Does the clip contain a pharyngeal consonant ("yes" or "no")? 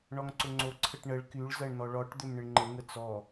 no